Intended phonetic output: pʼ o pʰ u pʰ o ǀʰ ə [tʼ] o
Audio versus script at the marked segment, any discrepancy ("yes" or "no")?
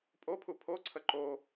yes